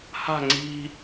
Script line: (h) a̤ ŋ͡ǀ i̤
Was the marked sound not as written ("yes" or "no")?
no